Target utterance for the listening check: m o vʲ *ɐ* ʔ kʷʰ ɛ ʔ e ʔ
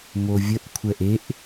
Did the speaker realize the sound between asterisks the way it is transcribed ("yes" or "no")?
no